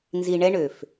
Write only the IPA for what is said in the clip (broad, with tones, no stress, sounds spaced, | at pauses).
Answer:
n z i˨ ɳ ɛ˧ ɳ ø˨ f